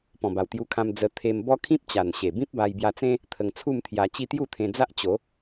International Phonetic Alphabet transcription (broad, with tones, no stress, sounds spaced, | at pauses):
p ɔ̃˨˩ b a˨˩ w t̪ j u˧ kʰ ã˧ m d͡z ə˧ t̪ʰ e˧ m b ɔ˦ kʰ ĩ˦ p̚ t͡ɕ a˨˩ n ɕ e˨˩ b ĩ˦ p̚ b a˧ j b j a˧ t͡s ẽ˦ | t̪ʰ ə˧ ŋ t͡sʰ u˥˧ m t̪ʰ j a˧ t͡ɕ i˥˧ t̪ j u˥˧ t̪ʰ ẽ˧ d͡z a˦ ʔ t͡ɕ o˨˦